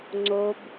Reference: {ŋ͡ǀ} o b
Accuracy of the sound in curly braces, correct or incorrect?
correct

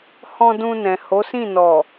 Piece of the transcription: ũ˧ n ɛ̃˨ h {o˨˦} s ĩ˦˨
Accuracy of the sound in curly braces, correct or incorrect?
correct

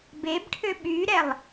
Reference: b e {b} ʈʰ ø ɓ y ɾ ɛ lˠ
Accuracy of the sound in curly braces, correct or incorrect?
correct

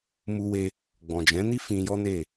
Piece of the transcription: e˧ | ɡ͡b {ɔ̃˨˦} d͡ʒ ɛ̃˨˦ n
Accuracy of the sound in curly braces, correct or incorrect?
incorrect: ɔ̃˨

